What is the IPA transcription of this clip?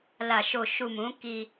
l a˨ ʃ o˨ ʃ u˨ m ũ˨˦ k i˧

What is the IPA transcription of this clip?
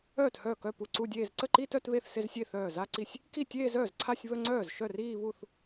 œː˥˩ t h œː˥˩ k œ˥˩ p u˥˩ ǀ u˥˧ dʲ eː˥˧ z ǀ ə˥˩ ǃ i˥˧ t œ˥˧ t β e˥˩ θ s e˥˧ z sʲ e˥˩ θ œː˥˩ z a˥˧ ǀ i˥˩ sʲ | k i˥˩ tʲ eː˥˧ z œː˥˩ z ǀʰ a˥˧ sʲ β ə˥˧ ŋ͡ǀ œː˥˩ z ʃ œ˥˩ r iː˥˧ β u˥˩ θ

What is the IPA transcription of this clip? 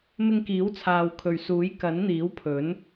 m ɪ˧ ŋ k iː˨˥ w t͡sʰ aː˨ w kʰ ɵ˨ ɥ s uː˨˥ j k ɐ˨˥ n n̪ iː˨˥ w pʰ ɵ˨˥ n

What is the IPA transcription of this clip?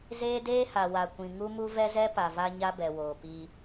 z eː˦ d eː˦ h a˨ w a˨ kʷ ĩ˨ ŋ u˦ m u˦ v ɛ˦ z ɛ˦ p a˨ v a˦ ɲ a˦ b ɛ˨ w oː˨ p iː˦

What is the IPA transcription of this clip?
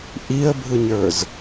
ʔ i ə̯ bʱ ɯ ɲ ə˞ z

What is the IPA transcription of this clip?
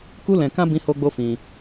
k u˦ l ɛ̃˧ k ã˦ b ĩ˦ h o˦ ɡ͡b o˦ f ĩ˧

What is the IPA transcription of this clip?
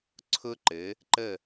ǀʰ ʊ˧ ǃ ɘ˩˧ | ǃ ə˧˩

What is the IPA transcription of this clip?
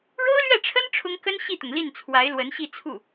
ɻ o˥ ʊ̯ l ɥ ɛ˥˩ ʈ͡ʂʰ ə˥ n ʈ͡ʂʰ ʊ˥ ŋ k ə˥ n ɕ i˥˩ t̪ ʊ˩ ŋ l i˥˩ n t͡sʰ w a˧˥ ɪ̯ l w ə˧˥ n ɕ i˥˧ t͡sʰ u˥˩

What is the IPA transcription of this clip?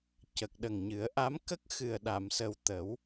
c ə˨˩ k̚ ɗ ə˨˩ ŋ ɲ ɨ˨˩˦ ə̯ ʔ a˧˥ m k ə˦˥ k̚ x ɨ˨˩ ə̯ ɗ a˨˩˨ m s ə˨˩ w t̪ ə˨˩˦ w

